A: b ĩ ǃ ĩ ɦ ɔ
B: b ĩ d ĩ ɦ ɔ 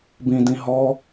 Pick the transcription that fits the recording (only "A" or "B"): B